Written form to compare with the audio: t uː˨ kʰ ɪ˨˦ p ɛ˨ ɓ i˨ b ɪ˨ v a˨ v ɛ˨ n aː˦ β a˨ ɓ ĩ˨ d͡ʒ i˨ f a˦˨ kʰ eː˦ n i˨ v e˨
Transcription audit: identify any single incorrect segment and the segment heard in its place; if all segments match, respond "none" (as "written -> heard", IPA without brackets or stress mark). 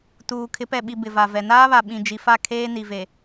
none